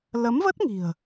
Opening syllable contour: rising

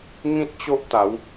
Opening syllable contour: high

